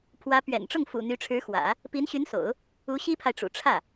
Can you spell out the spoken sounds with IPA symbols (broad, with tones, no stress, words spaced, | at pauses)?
pʰwä˧˥ pɥɛ̰˨˩nʈ͡ʂʊ˥˩ŋ fṵ˨˩ n̪y˧˥ʈ͡ʂʰɻ̩˧˥xwä̰˨˩˦ | pi˧˥nɕy˧˥nso̰˨˩˦ʊ̯ | u˧˥ɕi˥pʰa˨ɪ̯ʈ͡ʂṵ˨˩ ʈ͡ʂʰä˥˩